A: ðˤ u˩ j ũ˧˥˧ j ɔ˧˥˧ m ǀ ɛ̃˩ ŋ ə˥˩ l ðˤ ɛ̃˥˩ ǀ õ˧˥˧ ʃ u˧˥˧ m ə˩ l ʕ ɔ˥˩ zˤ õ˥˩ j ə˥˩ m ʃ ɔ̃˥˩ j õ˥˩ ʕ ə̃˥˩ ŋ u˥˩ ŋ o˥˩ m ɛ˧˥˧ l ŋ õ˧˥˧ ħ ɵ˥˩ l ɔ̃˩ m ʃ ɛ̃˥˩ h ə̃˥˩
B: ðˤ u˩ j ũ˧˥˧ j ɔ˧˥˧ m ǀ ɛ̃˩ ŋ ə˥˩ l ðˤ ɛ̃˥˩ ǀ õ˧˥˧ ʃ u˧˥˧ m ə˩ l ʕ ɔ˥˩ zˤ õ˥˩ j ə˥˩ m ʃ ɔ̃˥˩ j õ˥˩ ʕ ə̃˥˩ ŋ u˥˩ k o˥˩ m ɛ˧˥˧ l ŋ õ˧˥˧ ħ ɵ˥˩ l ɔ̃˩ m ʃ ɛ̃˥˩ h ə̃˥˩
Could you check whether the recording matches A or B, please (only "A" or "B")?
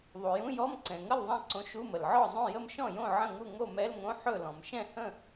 A